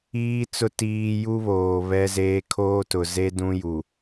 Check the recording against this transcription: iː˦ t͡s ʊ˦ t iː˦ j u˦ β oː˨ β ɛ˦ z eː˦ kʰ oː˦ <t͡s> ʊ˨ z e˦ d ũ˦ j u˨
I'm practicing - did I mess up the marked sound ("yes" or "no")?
yes